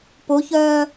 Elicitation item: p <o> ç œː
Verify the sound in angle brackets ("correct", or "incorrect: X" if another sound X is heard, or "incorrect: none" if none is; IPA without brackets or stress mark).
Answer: correct